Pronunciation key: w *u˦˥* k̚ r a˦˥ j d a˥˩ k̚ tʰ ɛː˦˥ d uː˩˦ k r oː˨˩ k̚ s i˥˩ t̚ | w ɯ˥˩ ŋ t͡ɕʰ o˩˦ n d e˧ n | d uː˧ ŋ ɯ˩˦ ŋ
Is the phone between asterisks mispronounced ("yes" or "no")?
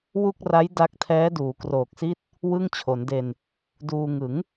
yes